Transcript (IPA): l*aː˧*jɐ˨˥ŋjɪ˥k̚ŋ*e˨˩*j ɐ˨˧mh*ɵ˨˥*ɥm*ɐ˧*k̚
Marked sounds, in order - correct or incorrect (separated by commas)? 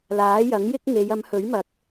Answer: incorrect, incorrect, correct, incorrect